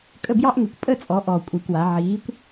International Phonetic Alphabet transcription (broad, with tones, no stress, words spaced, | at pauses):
kʼə˥˩bjɑ˥ʔŋe˧˩˧kʷ pʼə˥˩t͡sʼɔ˩˧ ʔɔ˨˩kʷʼi˨˩kwa˩˧ ʕiː˨˥kʷ